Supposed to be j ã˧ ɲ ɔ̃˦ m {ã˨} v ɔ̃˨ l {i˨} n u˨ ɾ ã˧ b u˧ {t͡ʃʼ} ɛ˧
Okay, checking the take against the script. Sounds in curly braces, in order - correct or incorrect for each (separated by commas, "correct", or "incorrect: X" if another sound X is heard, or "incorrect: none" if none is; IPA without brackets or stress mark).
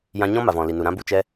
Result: incorrect: a˨, correct, incorrect: t͡ʃ